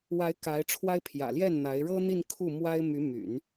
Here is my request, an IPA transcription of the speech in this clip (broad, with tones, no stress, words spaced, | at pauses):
wa˧˥ɪ̯ ka˧˥ɪ̯ʈ͡ʂʰwa˥ɪ̯pʰjä̰˨˩ ljɛ˥˩n n̪a˧˥ɪ̯ɻɤ˥n̪i˥˧n kʰu˥˩mwa˥ɪ̯ my˧˥my̰˨˩˦n